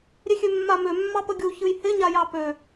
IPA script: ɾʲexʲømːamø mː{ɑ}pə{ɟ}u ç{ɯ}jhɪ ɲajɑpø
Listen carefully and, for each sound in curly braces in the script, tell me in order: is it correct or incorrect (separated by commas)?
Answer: correct, incorrect, correct